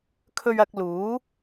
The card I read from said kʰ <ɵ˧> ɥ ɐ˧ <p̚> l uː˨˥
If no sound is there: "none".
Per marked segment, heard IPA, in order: ɵ˧, k̚

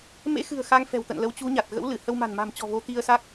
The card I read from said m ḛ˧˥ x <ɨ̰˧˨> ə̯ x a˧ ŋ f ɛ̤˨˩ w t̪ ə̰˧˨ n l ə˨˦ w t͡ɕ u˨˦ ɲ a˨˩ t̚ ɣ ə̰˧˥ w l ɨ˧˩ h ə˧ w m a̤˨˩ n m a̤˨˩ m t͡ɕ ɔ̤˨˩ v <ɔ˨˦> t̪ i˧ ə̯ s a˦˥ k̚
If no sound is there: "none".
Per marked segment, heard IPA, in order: ɨ̤˨˩, o˨˦

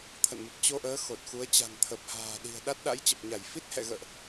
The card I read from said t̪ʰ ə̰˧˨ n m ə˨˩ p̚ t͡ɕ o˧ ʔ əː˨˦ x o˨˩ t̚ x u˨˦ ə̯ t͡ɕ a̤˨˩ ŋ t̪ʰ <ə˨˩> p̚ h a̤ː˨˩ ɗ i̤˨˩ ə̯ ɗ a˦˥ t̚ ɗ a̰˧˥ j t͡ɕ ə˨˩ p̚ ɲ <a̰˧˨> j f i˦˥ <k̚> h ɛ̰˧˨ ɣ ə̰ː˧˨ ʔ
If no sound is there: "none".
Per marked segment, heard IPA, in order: ə˨˩, a˧˩, t̚

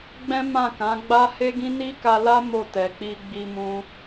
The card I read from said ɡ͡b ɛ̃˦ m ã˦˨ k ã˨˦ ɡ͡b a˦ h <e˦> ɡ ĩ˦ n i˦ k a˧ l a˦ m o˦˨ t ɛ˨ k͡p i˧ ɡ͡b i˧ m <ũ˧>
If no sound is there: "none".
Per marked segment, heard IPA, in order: e˦, ũ˧

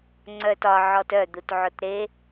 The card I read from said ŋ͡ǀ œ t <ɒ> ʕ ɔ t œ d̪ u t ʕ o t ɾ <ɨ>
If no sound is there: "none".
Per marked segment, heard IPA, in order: ɒ, e

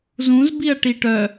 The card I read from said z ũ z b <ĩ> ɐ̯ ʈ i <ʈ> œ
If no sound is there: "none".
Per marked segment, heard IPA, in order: i, ʈ

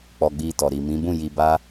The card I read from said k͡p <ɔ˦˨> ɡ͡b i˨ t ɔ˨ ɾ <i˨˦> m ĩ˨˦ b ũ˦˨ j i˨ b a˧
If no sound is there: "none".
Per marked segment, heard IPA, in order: ɔ˨, i˨

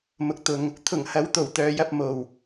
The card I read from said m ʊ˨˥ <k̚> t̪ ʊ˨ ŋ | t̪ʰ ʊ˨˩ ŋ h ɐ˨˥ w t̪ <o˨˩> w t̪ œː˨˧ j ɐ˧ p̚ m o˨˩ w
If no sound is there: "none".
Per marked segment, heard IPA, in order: k̚, o˨˩

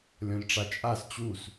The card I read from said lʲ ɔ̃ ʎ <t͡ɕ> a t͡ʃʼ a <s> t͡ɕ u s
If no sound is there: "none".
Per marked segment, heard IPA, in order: ʈ͡ʂ, s

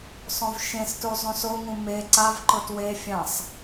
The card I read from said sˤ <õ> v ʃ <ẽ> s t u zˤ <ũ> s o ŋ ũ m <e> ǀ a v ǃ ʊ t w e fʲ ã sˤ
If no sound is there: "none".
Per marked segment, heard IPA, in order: õ, ẽ, ũ, e

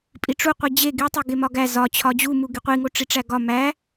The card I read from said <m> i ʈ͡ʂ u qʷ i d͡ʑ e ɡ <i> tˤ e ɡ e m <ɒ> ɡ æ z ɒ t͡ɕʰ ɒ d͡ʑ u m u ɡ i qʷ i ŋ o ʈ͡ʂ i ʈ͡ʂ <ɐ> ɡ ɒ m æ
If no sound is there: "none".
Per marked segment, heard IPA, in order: pʼ, i, ɒ, æ

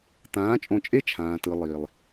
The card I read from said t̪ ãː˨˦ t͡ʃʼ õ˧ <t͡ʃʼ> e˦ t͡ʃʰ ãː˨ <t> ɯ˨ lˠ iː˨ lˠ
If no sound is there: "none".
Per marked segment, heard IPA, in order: t͡ʃʼ, t

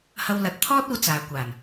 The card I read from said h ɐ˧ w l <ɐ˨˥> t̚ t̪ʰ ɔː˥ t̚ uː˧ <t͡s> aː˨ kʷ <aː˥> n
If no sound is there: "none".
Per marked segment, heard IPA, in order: ɐ˨˥, t͡s, aː˨˩

